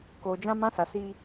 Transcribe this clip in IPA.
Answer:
koː˨d͡ʒã˦ mã˦sa˨ si˦

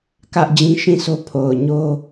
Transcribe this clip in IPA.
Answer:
kä˦ʔd͡ʑĩ˦ ʃĩ˦˨so˦ pʰo˨ʊ̯ɲo˦

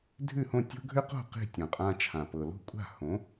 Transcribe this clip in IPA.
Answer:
dʱʉ˥˩hõ˥˩tʲo̤˥ ɡʱʏ˥qo̤˥˩ qi̤˥˩tʲõ˩qʼã˧ t͡ʃʰã˩pɤ˩lo̤˥˩kʷʼa̤˥˩ hõ˩˥

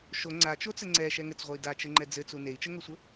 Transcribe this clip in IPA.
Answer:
ʃo ŋ͡ǀat͡ʃot͡sɘ ŋ͡ǀɛʃɛ ŋɘt͡sʁʷɘi̯ dat͡ʃɘŋ͡ǃɛ d͡zɘt͡su nei̯t͡ʃəŋosʷə

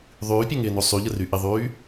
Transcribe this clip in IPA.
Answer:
ðˤyːpʲɜŋɪːno sˤyʎəry ʔɪðˤyː

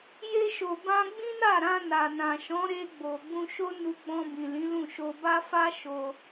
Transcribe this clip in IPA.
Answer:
je˧ʃo˨ bã˧ɡ͡bĩ˦na˦˨ɾã˧ na˨nã˨ʃɔ̃˨˦ɾe˧ ɡ͡bo˨ɡ͡bũ˧ʃo˦ nu˧ɡ͡bɔ̃˧bĩ˨ lĩ˨˦lũ˦˨ʃo˧ ba˦fa˦ ʃo˧

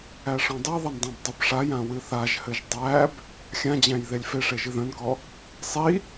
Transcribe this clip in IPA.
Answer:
æʂɔ̃dˤiðˤɘn dˤãbdˤɘbʂajã wɨθaʒhɘʒ dˤæb | xʲãd͡ʑæ̃j ðelʲfeʂe ʒɨðœ̃nkɔ | sˤi

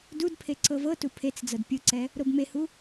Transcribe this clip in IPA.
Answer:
dudpʰe ǀɤvɤtu pʰet͡s d͡zɤdpʲɯǀɛ | ɾobmehu

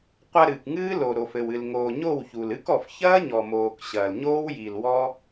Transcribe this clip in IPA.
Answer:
qʷa˧ɾɨː˨k ŋɨː˦lo˨ ɾo˨fɘ˨wɨ˨l ŋoː˨ɲo˦˨wçu˨lɨ˦k ɔ˨fçɐː˦ɲɔ˨moː˨k ɕɐː˨lɲoː˦w ji˨l wɔ˦

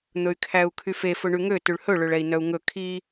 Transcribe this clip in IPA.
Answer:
n̪ɵy̯kʰæu̯kʰyfe fɵɳʉŋø tʉɭhɵ ɭøɭɛi̯nœu̯ŋɵ kʰi

